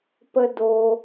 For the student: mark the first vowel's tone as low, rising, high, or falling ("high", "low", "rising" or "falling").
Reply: high